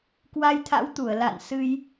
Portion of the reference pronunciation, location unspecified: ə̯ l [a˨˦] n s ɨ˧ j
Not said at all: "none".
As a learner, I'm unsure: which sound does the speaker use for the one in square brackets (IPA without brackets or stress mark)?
a̰˧˨